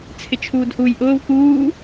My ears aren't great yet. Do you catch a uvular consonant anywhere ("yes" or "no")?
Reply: no